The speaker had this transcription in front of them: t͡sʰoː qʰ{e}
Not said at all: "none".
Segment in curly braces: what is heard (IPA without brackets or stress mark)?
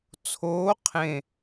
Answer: ẽ